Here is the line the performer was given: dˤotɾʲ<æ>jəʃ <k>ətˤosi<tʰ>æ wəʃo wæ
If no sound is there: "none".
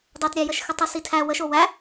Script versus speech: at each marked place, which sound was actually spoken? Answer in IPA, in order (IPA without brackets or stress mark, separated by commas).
æ, x, tʰ